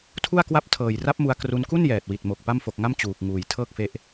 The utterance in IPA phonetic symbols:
tʰ u˥˩ a̯ k w a˥˩ p̚ tʰ ɤː˨˩ j r a˦˥ p̚ m u˧ a̯ k r u˧ n k u˥˩ n j ɛː˨˩ t̚ w i˨˩ t̚ m o˨˩ k̚ p a˥˩ m f o˨˩ k̚ ŋ a˥˩ m t͡ɕ uː˨˩ k̚ ŋ uː˨˩ j tʰ ɤː˥˩ k̚ f e˦˥ ʔ

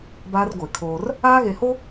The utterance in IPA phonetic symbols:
b aː˦ r ɡʷ e˨ kʰ oː˦ r | aː˦ ɣ e˨ h o˦

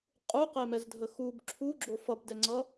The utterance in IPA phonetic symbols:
qʼ u q e m ɛ z dʱ ə x u b ǁʰ u ɡ͡ǁ o f ʌ b d ɛ ŋ͡ǀ ʌ

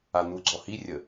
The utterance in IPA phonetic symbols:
a n̪ u ɡ͡ǀ ɔ h i rʲ ə

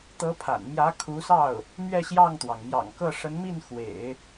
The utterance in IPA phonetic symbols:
t̪ ɤ˧˥ pʰ a̰˨˩ n m j ä˧˥ kʰ u˧˥ s ɑ˥˩ ʊ̯ | m ɥ ɛ˥˧ ɕ j ɑ˥˩ ŋ t̪ w ɑ˩ ŋ m j ɑ̰˨˩ ŋ k ɤ˥˩ ʂ ə˧˥ n m i˥˩ n x w ḛ˨˩˦ ɪ̯

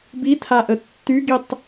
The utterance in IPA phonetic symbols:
b i tʰ a ʔ ə tː y ɡ i tˤ

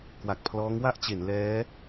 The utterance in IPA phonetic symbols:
k w a˨˩ k̚ pʰ l ɔː˦˥ ŋ w a˥˩ ʔ t͡ɕ e˩˦ n l ɛː˦˥

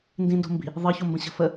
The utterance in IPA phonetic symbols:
n d ĩ n d o̤ m b i̤ | ðˤ ɤ ç o m b ə̃ ɕ ə̤ f ə

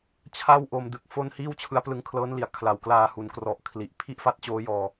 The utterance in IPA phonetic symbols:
t͡ɕʰ a˥˩ w ʔ o˧ m d ɯ˦˥ k̚ f o˥˩ n h iː˥˩ w t͡ɕʰ ɯ˦˥ a̯ p l ɯ˧ ŋ kʰ l ɤː˦˥ n l i˩˦ a̯ kʰ l a˨˩ w k l aː˧ h u˩˦ n k r ɔ˨˩ ʔ kʰ l i˨˩ ʔ pʰ i˥˩ ʔ f a˦˥ t̚ t͡ɕ oː˦˥ j ɔː˧

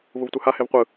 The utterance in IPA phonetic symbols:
v u v tʷ ɯ h a h e v qʷ ɯ

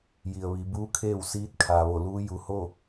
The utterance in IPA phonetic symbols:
j i˩ ə̯ ʋ i˩˧ b uː˧˥ kʰ eː˥˨ w s iː˧˥ t̚ kʰ aː˩ ʋ o˧˩ l uː˧˥ j u˩ h o˥˨

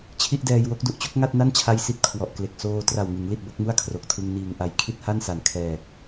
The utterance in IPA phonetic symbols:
t͡ɕʰ i˥˩ ʔ d ɛː˧ j w o˦˥ k̚ d u˨˩ ʔ t͡ɕ o˥˩ k̚ ŋ a˥˩ t̚ n a˥˩ n t͡ɕʰ a˦˥ j s i˨˩ t̚ kʰ w ɔ˨˩ ʔ k l e˨˩ k̚ s oː˧ t r a˨˩ w ŋ ɯ˩˦ ŋ l i˨˩ t̚ b o˥˩ k̚ m u˥˩ a̯ kʰ r o˨˩ k̚ tʰ ɯ˧ ŋ n iː˨˩ ŋ ʔ a˨˩ j kʰ i˥˩ t̚ h a˥˩ n s a˨˩ n kʰ ɛː˨˩ k̚

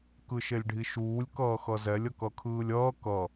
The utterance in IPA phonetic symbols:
k ɯ ʃ e lʲ ɖʱ i ʃ uː lʲ k ʌː x ʌ z ɛ lʲ ʌ k ʌ kʰ ɯː lʲ ʌː k ʌ

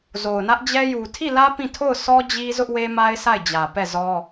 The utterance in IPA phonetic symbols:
z o˨ ʊ̯ n ä˦ ʔ d͡ʑ ɛ˦ j u˨ tʰ i˦˨ l ä˦ p ĩ˦˨ tʰ o˦˨ ʊ̯ sʰ ɔ˦ d͡ʑ i˦ z ʊ˦ ʔ w e˦ m a˦ ɪ̯ sʰ a˦˨ ɪ̯ d͡ʑ ä˨ p ɛ˦˨ z ɔ˦

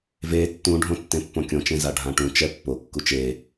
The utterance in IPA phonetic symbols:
v e tː ũ ɖʱ õ tː ẽ pː õ kʲ õ t͡ʃ ẽ z a ɖʱ ã ʈ ũ t͡ʃ ɛ pː o kː u t͡ʃ e

